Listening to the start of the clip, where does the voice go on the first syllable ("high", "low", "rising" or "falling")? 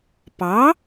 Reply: rising